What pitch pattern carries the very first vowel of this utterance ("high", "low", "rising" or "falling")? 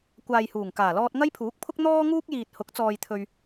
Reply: low